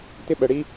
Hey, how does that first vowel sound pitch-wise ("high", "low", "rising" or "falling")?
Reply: high